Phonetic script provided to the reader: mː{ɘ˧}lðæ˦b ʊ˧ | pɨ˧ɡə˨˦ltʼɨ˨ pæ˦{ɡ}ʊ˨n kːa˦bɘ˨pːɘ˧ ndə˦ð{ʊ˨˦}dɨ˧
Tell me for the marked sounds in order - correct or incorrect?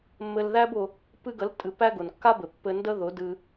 correct, correct, correct

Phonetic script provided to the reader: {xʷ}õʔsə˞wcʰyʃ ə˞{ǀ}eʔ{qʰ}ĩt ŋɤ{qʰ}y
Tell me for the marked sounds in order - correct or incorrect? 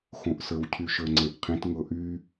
incorrect: x, incorrect: ŋ͡ǀ, correct, incorrect: ʔ

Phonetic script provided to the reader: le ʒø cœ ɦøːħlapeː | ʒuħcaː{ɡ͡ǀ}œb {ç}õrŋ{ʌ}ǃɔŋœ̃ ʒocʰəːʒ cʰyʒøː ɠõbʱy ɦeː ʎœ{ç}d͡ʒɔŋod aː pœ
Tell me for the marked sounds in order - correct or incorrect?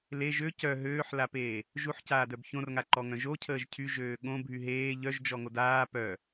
incorrect: d, correct, incorrect: a, incorrect: ʒ

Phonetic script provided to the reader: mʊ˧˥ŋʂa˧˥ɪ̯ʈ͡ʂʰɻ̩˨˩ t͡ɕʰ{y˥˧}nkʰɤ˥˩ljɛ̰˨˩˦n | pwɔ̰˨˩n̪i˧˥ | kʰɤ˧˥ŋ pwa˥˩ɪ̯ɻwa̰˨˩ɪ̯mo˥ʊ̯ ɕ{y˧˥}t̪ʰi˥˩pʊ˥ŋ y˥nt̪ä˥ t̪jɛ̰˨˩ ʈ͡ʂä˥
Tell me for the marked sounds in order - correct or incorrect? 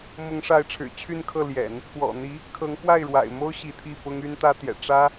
correct, incorrect: i˧˥

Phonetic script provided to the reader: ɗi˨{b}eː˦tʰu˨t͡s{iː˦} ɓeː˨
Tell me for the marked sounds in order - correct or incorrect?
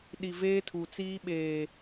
incorrect: v, correct

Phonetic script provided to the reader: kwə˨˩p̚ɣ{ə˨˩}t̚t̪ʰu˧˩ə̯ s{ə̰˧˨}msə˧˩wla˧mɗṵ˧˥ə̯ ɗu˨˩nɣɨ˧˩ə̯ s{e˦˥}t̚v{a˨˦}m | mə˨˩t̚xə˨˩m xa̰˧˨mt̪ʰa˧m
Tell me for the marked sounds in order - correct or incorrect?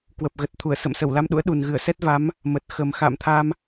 correct, correct, incorrect: ɛ˦˥, correct

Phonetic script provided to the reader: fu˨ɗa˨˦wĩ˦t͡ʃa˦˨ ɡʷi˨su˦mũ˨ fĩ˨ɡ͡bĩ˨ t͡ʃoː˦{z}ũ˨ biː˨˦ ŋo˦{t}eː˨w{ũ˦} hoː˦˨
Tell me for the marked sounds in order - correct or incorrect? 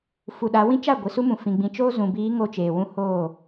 correct, incorrect: t͡ʃ, correct

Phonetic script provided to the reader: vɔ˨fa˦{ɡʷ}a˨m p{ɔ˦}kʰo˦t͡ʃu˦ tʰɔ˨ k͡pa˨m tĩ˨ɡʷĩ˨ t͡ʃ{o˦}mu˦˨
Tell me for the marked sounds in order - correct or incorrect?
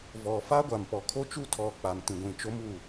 correct, incorrect: ɔ˨, correct

